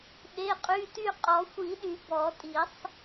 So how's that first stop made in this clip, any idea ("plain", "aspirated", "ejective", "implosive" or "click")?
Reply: implosive